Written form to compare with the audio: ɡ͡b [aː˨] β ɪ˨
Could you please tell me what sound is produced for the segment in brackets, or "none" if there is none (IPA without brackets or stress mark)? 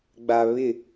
a˨